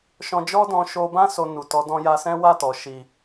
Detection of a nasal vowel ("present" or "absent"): present